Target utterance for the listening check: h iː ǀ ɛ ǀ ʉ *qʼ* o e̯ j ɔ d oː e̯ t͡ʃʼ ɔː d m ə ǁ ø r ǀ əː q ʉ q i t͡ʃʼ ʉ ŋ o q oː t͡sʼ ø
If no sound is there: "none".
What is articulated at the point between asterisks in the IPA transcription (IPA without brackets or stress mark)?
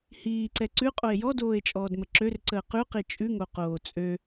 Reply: qʼ